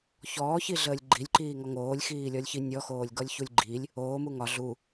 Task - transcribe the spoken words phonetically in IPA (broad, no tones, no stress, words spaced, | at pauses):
çɔːçiɮəːlʲ ɡ͡ǃilʲǃiːŋɔ ŋoːlʲxiːlʲɔlʲçi nʲɔxoːlʲɡɔlʲçulʲ ɡ͡ǃilʲ | oːmu ŋɒ ɮu